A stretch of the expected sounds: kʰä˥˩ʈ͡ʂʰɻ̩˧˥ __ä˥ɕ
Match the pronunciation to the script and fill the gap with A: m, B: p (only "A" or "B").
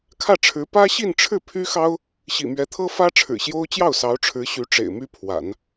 B